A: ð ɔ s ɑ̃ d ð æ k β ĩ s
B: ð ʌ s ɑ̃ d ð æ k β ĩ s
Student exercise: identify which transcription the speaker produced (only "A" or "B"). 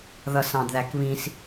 B